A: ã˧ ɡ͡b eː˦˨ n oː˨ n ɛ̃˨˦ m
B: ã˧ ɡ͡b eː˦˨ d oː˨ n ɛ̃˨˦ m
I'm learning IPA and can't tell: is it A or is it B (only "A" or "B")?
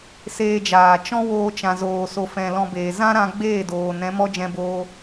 B